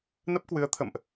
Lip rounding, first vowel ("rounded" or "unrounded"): unrounded